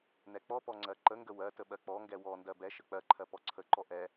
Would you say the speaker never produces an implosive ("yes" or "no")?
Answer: no